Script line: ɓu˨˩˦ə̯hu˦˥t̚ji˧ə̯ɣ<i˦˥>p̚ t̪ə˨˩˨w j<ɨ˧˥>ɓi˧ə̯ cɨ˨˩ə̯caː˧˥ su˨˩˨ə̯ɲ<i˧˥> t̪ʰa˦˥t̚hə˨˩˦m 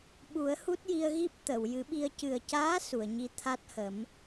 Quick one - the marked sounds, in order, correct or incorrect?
correct, incorrect, correct

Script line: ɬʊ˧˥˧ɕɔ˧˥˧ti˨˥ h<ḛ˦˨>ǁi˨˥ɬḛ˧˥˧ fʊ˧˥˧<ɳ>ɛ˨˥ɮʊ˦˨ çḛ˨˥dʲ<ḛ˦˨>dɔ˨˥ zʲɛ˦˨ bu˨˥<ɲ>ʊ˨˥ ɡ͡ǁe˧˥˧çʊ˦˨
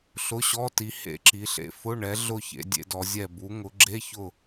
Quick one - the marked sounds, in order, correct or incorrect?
correct, correct, incorrect, incorrect

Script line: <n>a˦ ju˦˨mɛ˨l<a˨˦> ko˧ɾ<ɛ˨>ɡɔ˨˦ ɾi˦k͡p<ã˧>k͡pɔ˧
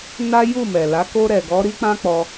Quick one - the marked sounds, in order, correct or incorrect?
correct, correct, correct, incorrect

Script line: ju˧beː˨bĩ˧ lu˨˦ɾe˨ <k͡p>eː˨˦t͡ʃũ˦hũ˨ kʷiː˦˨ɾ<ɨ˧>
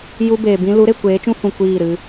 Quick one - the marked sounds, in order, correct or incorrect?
incorrect, correct

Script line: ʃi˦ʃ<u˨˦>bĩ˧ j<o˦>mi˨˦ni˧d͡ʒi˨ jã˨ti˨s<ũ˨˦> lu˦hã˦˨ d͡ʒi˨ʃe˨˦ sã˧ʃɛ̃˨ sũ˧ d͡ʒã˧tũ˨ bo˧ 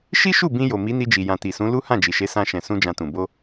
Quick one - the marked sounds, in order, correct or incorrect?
incorrect, incorrect, correct

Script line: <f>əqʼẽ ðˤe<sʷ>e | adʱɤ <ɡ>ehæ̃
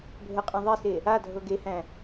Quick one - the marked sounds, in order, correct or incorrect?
incorrect, incorrect, correct

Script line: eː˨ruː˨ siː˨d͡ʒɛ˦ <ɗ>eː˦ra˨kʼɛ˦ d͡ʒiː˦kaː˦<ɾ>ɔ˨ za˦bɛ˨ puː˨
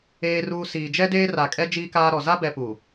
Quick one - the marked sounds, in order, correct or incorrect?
incorrect, correct

